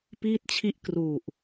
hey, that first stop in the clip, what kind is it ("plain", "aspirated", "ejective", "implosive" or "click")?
plain